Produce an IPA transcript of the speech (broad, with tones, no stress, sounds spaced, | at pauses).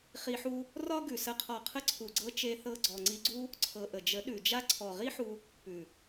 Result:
χ i˧ ħ u˦ | r ɒ˦ ɡ ʉ˨ s ə˨˦ qʰ ɒ˨ qʰ ə˧ ǀʰ u˨ ɡ͡ǀ ɤ˧ t͡ʃ e˧ θ ɤ˧ ɡ͡ǀ ɔ˨ ŋ͡ǀ i˧ ɡ͡ǀ u˦ | ǀʰ ɤ˨ ʔ ə˨ d͡ʒ ə˨˦ ɗ ʉ˨ d͡ʒ a˦ ǀʰ ɔ˨ ʁ i˦ ħ u˧ | p ʉ˨